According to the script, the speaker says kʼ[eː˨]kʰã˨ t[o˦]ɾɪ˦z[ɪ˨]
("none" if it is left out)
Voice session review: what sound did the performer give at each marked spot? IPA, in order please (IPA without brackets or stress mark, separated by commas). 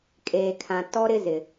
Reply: eː˨, ɔ˦, ɪ˨